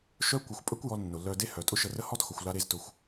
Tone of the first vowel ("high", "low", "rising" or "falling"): high